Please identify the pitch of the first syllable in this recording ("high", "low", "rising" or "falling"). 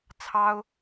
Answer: high